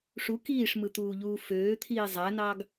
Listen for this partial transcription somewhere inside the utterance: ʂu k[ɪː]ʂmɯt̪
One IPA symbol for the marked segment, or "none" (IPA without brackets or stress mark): iː